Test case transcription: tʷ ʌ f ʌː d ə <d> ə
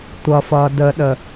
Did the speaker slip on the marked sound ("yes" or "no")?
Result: yes